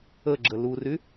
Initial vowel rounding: unrounded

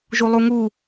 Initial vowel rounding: rounded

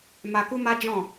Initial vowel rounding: unrounded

